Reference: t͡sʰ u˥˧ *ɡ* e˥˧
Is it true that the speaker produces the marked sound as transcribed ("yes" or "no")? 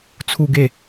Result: yes